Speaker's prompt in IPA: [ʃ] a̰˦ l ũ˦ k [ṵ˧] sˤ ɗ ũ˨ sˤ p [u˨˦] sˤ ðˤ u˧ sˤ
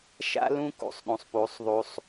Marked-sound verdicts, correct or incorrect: correct, correct, correct

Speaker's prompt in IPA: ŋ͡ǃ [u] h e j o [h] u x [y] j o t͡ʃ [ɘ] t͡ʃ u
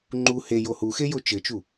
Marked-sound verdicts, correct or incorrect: correct, correct, incorrect: e, correct

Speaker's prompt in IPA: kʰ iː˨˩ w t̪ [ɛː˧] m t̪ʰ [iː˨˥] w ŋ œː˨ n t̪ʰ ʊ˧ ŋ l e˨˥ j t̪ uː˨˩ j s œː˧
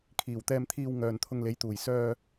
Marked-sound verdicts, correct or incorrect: correct, incorrect: iː˧

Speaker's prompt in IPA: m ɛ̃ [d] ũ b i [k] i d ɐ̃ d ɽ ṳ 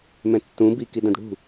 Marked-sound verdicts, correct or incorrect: incorrect: tː, correct

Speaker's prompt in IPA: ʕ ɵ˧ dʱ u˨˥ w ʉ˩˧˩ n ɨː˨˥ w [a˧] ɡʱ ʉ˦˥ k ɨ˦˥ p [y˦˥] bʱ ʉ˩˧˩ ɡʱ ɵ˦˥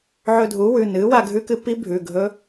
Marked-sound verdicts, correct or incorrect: correct, incorrect: i˦˥

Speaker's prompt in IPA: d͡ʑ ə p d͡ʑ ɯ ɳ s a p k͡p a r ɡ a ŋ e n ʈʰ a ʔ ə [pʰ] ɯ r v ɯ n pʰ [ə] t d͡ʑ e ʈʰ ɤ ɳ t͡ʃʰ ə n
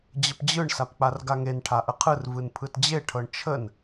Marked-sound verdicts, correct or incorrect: incorrect: qʰ, incorrect: ɯ

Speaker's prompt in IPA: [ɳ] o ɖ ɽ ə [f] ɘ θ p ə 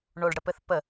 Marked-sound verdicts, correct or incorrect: correct, incorrect: p

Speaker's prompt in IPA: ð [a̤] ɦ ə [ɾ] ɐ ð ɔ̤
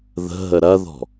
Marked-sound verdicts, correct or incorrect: incorrect: ə̤, correct

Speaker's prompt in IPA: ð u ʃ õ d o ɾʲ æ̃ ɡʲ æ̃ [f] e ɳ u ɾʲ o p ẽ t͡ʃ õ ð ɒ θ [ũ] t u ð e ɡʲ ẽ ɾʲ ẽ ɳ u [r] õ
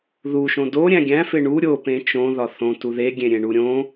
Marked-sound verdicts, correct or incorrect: correct, incorrect: õ, incorrect: ɾʲ

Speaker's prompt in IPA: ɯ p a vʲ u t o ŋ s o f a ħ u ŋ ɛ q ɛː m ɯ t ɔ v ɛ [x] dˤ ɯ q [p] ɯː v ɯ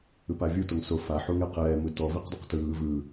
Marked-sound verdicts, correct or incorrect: incorrect: q, incorrect: t

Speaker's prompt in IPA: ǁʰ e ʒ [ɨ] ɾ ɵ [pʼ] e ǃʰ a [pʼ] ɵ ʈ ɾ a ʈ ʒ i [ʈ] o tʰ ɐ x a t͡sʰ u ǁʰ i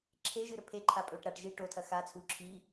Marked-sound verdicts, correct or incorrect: correct, incorrect: pʰ, correct, correct

